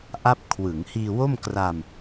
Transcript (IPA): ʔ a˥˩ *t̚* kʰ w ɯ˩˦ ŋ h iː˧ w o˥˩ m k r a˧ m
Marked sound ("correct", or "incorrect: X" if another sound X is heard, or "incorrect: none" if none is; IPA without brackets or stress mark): incorrect: p̚